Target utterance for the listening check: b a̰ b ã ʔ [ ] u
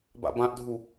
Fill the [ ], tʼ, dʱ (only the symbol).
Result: dʱ